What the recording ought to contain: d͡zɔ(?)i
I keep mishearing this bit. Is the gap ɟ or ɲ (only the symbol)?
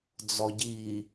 ɟ